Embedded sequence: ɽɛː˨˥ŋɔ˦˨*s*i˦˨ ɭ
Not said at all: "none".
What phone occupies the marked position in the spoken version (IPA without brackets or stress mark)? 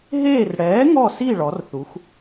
s